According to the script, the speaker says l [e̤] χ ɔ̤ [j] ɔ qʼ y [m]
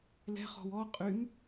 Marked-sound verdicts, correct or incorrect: incorrect, incorrect, correct

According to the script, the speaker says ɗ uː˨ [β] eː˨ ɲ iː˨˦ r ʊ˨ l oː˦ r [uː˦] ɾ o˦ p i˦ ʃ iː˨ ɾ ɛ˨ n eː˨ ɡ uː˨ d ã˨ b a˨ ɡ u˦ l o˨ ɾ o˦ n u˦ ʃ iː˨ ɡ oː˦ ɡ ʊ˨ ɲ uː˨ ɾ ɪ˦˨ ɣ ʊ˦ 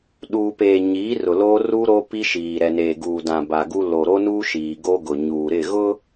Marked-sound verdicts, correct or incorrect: incorrect, correct

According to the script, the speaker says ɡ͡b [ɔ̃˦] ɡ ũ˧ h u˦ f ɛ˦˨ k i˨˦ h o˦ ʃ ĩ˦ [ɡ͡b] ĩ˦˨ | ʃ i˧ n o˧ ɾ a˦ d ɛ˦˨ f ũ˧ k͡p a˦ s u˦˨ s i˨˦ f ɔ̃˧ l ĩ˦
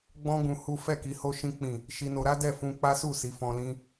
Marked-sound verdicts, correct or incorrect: correct, incorrect

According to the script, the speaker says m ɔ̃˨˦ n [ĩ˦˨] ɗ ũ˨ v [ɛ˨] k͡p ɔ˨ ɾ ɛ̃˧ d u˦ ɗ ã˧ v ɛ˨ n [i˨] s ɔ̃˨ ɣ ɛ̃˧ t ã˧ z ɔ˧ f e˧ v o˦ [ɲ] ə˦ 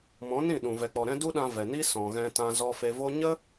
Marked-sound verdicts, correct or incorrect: correct, correct, incorrect, correct

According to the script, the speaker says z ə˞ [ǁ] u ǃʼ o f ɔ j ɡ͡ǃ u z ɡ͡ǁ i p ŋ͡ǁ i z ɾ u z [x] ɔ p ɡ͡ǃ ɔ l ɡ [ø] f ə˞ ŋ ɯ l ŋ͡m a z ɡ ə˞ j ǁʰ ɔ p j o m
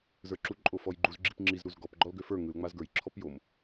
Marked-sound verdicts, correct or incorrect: correct, incorrect, correct

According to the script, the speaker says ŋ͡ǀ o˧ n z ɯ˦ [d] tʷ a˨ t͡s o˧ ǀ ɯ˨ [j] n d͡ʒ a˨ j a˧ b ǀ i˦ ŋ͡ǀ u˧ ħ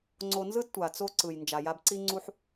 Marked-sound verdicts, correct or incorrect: correct, correct

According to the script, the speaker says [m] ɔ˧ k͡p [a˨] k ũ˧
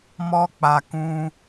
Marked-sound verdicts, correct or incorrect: correct, correct

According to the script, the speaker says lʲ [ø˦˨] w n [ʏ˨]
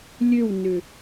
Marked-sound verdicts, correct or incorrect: correct, correct

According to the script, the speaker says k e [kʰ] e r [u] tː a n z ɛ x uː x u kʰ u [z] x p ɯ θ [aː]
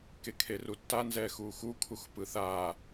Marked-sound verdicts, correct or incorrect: correct, correct, incorrect, correct

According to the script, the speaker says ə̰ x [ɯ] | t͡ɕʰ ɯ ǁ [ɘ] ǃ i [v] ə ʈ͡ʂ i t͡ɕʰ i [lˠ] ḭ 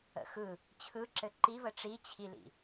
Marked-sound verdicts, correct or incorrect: correct, correct, correct, incorrect

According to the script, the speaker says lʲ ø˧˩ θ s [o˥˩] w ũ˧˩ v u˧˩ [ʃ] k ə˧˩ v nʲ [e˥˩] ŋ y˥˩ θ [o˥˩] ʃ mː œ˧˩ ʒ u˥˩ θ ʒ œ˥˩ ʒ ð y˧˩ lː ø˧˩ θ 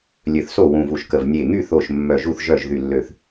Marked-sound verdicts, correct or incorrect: correct, correct, incorrect, incorrect

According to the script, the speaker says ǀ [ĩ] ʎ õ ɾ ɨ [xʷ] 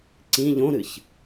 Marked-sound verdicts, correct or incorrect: correct, incorrect

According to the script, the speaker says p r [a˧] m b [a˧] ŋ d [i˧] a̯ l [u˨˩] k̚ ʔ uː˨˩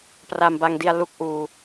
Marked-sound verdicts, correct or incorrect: correct, correct, correct, incorrect

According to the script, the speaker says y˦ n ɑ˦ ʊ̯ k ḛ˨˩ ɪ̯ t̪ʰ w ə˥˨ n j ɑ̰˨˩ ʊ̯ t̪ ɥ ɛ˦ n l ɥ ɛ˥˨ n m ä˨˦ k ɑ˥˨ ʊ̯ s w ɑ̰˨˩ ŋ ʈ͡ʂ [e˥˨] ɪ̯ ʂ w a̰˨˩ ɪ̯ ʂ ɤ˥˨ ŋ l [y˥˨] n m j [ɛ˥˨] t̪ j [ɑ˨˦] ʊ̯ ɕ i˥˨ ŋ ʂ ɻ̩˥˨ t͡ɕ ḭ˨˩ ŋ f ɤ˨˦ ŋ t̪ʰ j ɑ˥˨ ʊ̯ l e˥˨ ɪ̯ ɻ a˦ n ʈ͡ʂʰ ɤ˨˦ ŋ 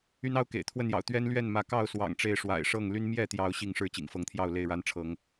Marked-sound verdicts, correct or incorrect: incorrect, incorrect, correct, correct

